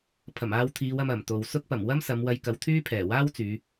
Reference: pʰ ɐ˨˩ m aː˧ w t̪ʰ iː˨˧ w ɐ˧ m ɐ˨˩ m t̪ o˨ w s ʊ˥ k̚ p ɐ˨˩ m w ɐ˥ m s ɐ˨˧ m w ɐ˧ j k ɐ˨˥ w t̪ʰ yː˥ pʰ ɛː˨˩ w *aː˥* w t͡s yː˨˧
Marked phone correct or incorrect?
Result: correct